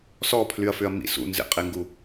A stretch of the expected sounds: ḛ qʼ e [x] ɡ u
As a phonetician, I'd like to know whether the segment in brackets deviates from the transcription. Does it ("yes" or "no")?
yes